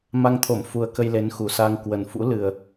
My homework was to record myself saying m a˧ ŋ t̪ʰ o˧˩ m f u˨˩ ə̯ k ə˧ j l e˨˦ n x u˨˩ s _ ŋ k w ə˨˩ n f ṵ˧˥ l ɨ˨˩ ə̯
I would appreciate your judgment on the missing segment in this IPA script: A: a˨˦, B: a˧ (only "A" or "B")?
B